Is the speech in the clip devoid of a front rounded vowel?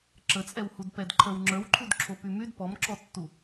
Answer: no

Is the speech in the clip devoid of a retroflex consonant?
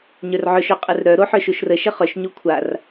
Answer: yes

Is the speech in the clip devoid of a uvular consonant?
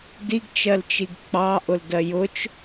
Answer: yes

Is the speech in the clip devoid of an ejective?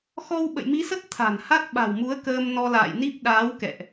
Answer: yes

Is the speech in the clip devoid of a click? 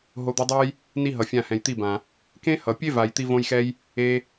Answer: yes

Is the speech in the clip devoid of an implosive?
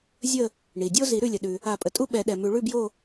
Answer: no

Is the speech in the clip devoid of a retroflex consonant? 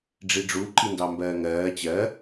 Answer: no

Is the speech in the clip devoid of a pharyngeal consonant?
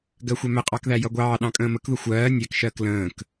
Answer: yes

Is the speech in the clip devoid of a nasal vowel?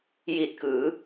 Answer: yes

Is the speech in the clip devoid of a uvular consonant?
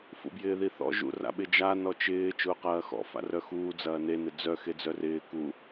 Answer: no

